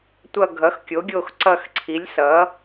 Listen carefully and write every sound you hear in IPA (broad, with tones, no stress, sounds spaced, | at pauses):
tʷ ʌ˦˨ ɡʱ ʌ˩˥ x kʲ o˩˥ ɡʲ o˦˨ x ǀ ʌ˦˨ x ǀʰ i˩˥ lʲ s ʌ˩˥